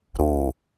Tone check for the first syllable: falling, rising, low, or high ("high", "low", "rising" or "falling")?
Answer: low